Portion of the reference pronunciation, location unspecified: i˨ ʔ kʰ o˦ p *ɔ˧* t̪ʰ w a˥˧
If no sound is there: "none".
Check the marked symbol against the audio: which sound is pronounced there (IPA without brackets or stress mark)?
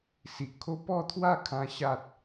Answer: ɔ˥˧